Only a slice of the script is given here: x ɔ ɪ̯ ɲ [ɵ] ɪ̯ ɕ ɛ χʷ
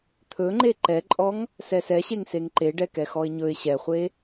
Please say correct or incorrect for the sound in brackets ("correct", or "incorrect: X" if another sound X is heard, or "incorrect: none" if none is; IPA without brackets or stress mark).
correct